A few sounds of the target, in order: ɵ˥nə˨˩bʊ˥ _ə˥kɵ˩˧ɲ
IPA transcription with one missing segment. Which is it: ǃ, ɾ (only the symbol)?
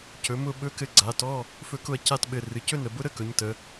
ɾ